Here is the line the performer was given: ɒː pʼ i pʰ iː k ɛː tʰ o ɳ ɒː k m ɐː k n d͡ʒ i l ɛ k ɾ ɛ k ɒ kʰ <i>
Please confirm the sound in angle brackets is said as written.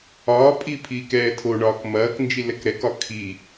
yes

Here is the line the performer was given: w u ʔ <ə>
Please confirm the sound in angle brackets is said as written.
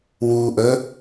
yes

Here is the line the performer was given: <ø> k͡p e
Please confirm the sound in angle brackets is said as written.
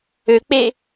yes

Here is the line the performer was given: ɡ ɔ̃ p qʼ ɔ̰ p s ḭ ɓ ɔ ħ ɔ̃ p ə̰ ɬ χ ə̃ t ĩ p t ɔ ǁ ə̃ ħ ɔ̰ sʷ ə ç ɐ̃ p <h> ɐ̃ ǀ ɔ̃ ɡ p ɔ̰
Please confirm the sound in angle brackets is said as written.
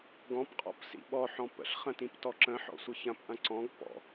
no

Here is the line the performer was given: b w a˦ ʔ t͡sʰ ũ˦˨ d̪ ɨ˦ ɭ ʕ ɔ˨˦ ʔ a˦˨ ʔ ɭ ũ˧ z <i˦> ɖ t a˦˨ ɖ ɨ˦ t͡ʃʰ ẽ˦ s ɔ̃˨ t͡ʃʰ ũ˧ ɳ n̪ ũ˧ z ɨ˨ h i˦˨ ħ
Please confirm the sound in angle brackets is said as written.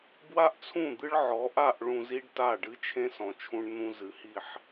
yes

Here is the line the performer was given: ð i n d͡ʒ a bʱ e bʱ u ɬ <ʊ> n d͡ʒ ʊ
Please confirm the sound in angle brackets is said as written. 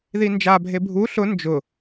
yes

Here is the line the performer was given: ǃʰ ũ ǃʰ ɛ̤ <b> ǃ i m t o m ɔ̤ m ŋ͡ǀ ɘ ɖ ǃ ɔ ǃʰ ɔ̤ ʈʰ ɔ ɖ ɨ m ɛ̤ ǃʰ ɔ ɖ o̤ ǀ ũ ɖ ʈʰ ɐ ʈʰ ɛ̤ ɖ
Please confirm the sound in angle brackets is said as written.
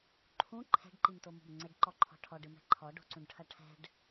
no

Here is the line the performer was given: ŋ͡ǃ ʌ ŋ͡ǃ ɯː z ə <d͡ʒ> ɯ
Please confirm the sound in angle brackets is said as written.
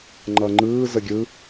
no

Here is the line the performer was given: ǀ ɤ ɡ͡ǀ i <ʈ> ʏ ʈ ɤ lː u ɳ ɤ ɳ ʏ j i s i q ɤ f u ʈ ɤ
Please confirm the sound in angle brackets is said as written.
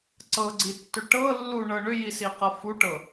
no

